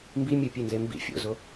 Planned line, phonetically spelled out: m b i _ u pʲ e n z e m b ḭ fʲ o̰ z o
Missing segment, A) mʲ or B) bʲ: A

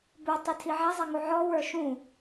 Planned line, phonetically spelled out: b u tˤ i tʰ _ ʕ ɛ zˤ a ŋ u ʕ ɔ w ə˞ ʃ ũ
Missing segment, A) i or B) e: A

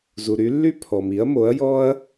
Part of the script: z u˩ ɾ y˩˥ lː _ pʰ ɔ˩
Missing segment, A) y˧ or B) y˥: B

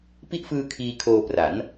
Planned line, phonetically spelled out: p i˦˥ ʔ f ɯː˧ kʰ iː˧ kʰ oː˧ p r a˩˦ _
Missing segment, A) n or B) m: A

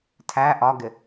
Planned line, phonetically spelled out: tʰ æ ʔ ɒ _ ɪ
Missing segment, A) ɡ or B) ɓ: A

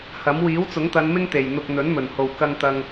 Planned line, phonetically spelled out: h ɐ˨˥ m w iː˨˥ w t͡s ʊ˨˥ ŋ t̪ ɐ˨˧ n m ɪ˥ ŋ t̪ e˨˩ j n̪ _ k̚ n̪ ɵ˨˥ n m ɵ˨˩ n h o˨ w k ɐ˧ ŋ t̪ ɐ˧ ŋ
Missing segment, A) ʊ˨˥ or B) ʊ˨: B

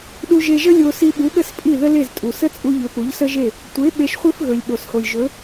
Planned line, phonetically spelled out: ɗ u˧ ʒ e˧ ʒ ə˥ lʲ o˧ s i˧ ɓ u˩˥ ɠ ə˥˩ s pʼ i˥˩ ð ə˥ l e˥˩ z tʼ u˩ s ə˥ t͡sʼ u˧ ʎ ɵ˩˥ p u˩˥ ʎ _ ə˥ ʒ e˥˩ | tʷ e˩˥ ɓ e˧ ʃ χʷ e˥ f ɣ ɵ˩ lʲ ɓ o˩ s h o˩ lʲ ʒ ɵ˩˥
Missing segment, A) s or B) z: A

